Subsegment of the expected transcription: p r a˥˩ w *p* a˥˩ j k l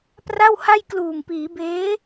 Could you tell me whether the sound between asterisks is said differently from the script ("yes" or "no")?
yes